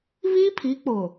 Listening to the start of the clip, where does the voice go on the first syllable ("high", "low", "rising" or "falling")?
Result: high